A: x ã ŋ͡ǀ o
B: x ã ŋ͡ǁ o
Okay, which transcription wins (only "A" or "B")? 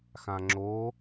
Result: B